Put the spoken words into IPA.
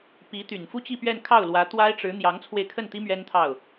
p i˧˥ t̪ y˨˩ n f u˥ t͡ɕ i˥˧ p ɥ ɛ˥˧ n kʰ ɑ˥˩ ʊ̯ l w ä˧˥ t̪ w a˥ ɪ̯ ʈ͡ʂ ɻ̩˧˥ n̪ j ɑ˧˥ ŋ t͡sʰ w e˧ ɪ̯ kʰ ə˥˩ n t̪ i˥ m ɥ ɛ˥ n t̪ʰ ɑ˥˩ ʊ̯

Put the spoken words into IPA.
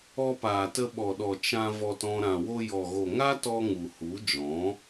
ɔ˧ p aː˨ t ə˧ ɓ ɔ˨ ɗ ɔ˨ t͡ʃ ã˧ v ɔ˧ t ɔ̃˧ ɾ ã˨ w o˧ j ɔ˨ ɣ o˨ ŋ a˦ t ɔ˧ ŋ u˨ h u˨˦ d͡ʒ ɔ̃˨˦

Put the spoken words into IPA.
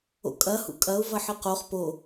o̰ kʼ ɐ h ṵ kʼ ɐ ʊ̯ v ɐ ħ ɨ q o χ p o

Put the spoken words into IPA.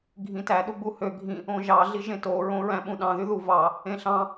ɡʱ ĩ t æ ɗ u ɡ͡b u h ø ɡʱ ĩ | õ ʒ ɑ ɮ i ʒ ẽ t o ɹ õ ɹ æ̃ ɓ ũ ɗ ɑ̃ ð y ð u v ɑ | ẽ ɬ ɑ̃

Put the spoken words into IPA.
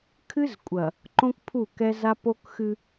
kʰ ɨ˦ z kʷʼ ɐ˨ | ǃ õ˦ k pʰ u˦˨ k ɛ˦ z a˦ p o˦ k x ɨ˦

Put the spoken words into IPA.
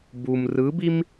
b u m r ɯ b i m

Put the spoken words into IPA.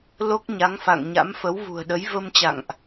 l o˦˥ k̚ ɲ a˨˦ ŋ f a̰˧˨ ŋ ɲ a̰˧˥ m f ə˨˦ w v ṳ˨˩ ə̯ ɗ ə˨˦ j v ə˧ m t͡ɕ a̰˧˨ ŋ ʔ

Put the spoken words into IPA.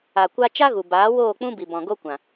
a˨ kʷ a˦ t͡ʃ a˦ ɣ u˨ b aː˨˦ w oː˦˨ k͡p ũ˦ b i˨ b ɔ̃˨ ɡ o˦ kʷ ã˨

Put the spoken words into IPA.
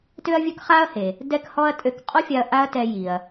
t ø˥ ɐ̯ vʲ ɵ˥ k χ a˥ ɐ̯ h e˩ | d ɛ˥ k h ɔ˥ ɐ̯ tʼ ø˧ k qʼ ɔ˥ fʲ a˧ ɐ̯ ʔ a˥ ɐ̯ t ɛ˧ j i˩ ɐ̯

